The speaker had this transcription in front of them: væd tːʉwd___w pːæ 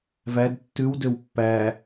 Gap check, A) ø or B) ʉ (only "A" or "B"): A